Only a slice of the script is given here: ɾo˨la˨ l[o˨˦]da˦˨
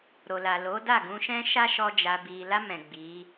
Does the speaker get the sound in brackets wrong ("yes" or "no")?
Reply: no